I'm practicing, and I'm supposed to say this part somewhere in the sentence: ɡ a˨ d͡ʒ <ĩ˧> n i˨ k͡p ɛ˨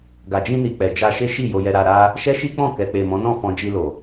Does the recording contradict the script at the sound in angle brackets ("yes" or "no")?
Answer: no